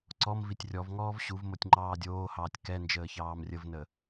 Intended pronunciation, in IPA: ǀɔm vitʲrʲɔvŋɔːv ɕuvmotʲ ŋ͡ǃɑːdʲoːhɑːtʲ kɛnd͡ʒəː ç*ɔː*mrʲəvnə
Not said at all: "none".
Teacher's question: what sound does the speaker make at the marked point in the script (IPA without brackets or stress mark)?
ɑː